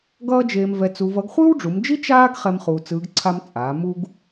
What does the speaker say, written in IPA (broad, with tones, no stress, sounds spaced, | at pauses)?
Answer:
ɡ ʌː˥ d͡ʒ eː˧ m v ɛ˧ t͡s u˧ v ʌ˧˥ ɡ χʷ ɯː˥ w ɖ͡ʐ u˩˧ m d͡ʒ i˥ t͡ʃ aː˥ ɡ χ ɛ˥ m χ uː˧ t͡s ɯː˧˥ ɡ ǀʰ a˥ m t͡sʼ aː˩˧ m u˥ ɡ